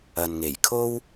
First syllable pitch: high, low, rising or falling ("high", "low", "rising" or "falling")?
low